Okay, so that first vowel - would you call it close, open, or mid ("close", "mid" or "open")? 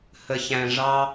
mid